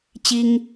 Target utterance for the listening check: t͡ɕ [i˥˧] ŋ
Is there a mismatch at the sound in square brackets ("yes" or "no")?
yes